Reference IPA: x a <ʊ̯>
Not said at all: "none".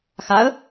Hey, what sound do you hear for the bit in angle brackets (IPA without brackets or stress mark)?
ə̯